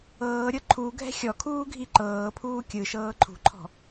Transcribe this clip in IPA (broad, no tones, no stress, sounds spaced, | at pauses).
ɤː ɾʲ ɤ ǃʰ u ɡʱ ɛ̤ xʲ ɔ kʰ uː ɡʱ i ǃ ɤː pʰ uː kʲ ɯ ʃ ɤː ǃʰ ṳ ǃʰ ɔ̤